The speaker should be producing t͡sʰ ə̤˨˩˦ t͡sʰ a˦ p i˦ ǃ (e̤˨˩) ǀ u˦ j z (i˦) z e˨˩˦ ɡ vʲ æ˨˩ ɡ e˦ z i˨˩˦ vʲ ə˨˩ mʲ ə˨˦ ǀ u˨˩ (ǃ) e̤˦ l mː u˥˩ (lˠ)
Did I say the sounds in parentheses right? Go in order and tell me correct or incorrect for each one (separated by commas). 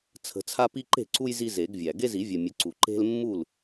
incorrect, correct, correct, incorrect